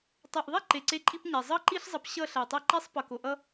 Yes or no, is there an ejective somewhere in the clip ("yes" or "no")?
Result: yes